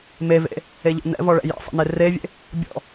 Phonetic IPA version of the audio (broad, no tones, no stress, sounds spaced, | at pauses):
m e v ḛ | e ʎ ɔ̰ n ɛ̰ v ɔ ɭ ɛ̰ j ḛ sˤ ɛ̰ n e r e vʲ ḛ | bʲ ɔ̰